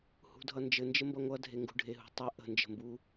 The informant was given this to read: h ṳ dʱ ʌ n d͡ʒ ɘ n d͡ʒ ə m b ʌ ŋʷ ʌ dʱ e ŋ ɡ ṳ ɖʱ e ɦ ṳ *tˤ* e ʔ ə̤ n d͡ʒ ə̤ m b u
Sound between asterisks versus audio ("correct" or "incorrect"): correct